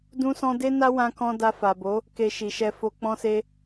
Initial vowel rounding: rounded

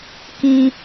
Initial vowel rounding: unrounded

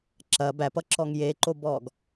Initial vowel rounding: unrounded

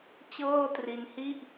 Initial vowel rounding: unrounded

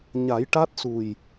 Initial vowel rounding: unrounded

